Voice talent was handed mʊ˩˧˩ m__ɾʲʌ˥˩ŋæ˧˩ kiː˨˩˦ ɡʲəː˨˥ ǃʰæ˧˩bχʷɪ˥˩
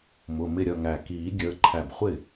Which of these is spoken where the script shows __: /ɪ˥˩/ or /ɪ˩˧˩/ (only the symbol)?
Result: ɪ˥˩